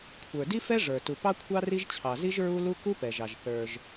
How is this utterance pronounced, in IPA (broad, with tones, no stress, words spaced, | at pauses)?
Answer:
kʷʰə˞˩di˥fɛ˥ ʐə˞˩ tu˩pɑ˥kʷʰɑ˥ ri˥ʒ t͡ɕʰɑ˩zi˥ʒ ɹu˥ lu˥ ku˥pɛ˩ʒɑ˩ʒ θə˞˩ʒ